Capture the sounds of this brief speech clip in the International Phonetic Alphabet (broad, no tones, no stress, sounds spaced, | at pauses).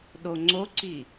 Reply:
ɗ o ŋ͡ǀ o ǀ i